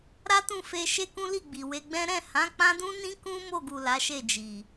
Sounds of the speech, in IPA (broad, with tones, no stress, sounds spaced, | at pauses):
ɾ a˦ t ũ˦˨ f e˧ ʃ e˦ k ũ˦ l i˦˨ ɡ͡b i˨ w e˧ ɡ͡b ɛ̃˦ ɾ ɛ̃˦˨ h ã˨˦ k͡p ã˦ d ũ˦ n ĩ˦ k ũ˦ m o˦˨ ɡ u˨ l a˨˦ ʃ e˦˨ d͡ʒ i˨